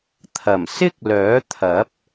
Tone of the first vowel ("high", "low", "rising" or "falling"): low